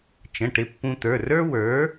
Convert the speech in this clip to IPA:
t͡ʃ ə̃˩˧˩ ʈ ɪ˧ pː ũ˧ t̪ ə˞˩˧˩ r ə˞˥ w ə˞˩˥

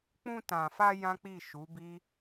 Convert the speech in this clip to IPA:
k͡p ũ˧ t ã˨ f a˧ j ã˦ k͡p i˦˨ ʃ u˨˦ b i˦

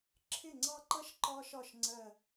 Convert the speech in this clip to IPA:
ǁʰ ɪ˥˩ ŋ͡ǀ ɑ˥˧ ǃ ʌ˥ ʃ ǃ ɒ˥ ʃ ɒ˥˩ ʃ ŋ͡ǀ ɜ˧˩

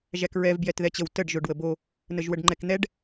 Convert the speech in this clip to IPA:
ʒ æ k ɹ ɛ v b j ɛ t ð ɛ t͡ɕ ə w t ə ɖ ʒ o ɖ w ə b o | n ə ʒ w ə ɖ ŋ͡ǃ ɛ k n̪ ɛ ɖ

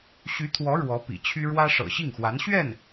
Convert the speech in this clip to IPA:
ɕ y˧˥ t̪ʰ w ɔ˧˥ ɻ w ɔ˧˥ p ḭ˨˩ t͡ɕʰ y˥ ɻ w ä˥ ʂ ɤ̰˨˩ ɕ i˥˩ ŋ x w a˧˥ n ɕ ɥ ɛ˥˩ n

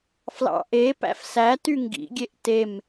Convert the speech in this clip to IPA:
f l ɑ̰ ʔ e p æ̰ f s æ t y ŋ ɡ ḭ ɡʲ e ʔ t e m

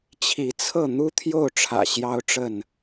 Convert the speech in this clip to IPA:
t͡ɕʰ i˨˦ t͡sʰ ɤ˥˨ n̪ u˦ t̪ʰ j o˥˨ ʊ̯ ʈ͡ʂʰ ä̰˨˩ ɕ j ɑ˦ ʊ̯ ʈ͡ʂ ə˥˨ n

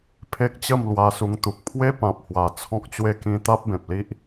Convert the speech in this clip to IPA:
pʰ e˦ k̚ t͡ɕ ə˥˧ m l w a˧ s u˧ ŋ t̪ u˨ k̚ pʰ w e˦ p ã˨ p̚ h w a˨˩ t͡sʰ ɔ̃˦ k̚ t͡ɕ w e˥˧ k ĩ˦ t̪ a˦ p̚ b ẽ˨ p̚ l i˦ ʔ

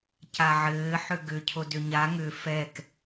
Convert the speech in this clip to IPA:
c a ʕ ɘː ħ ʏ ɡ ʏ cʰ o d ʏ ɲ a ŋ ʏ f ɛ k

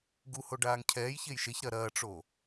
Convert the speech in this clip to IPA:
ɡ u h o ɖ aː ŋ cʰ ɛː j ç e j ʃ e ç ɾ ɐ ɾ ɐː ʈ͡ʂ o

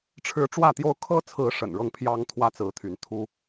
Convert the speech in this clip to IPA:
ʈ͡ʂʰ ɻ̩˨˦ ʈ͡ʂ w ä˥˨ t̪ j o˦ ʊ̯ kʰ ɤ˦ t͡sʰ ɹ̩˨˦ ʂ ə̰˨˩ n ɻ ɤ˥˨ ŋ pʰ j ɑ˦ ŋ t̪ʰ w ä˦ t͡s ɹ̩˨˦ t̪ʰ y˨˦ n t̪ʰ u˦

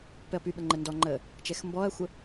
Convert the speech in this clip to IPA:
p ɛ ɐ̯ p y ɓ ə ŋ͡ǃ ə n d ɔ ŋ͡ǃ əː | t͡ʃ ɛ x m b ɔ ɐ̯ xʷ ə

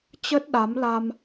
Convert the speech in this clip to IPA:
t͡ɕ ə˦˥ t̚ ɗ a˨˦ m l a˧ m

